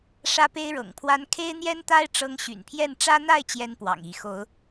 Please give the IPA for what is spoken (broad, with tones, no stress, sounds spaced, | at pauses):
ʂ ä˦ p e˦ ɪ̯ ɻ ɤ̰˨˩ ŋ pʰ w a˦ n kʰ e˦ ɪ̯ n̪ j ɛ˦ n t̪ a˦ ɪ̯ ʈ͡ʂ ɤ˦ ŋ ɕ y̰˨˩ n pʰ j ɛ˥˨ n ʈ͡ʂ ä˦ n̪ a˥˨ ɪ̯ t͡ɕ j ɛ˦ n p w ɑ̰˨˩ ŋ i˨˦ x o˨˦ ʊ̯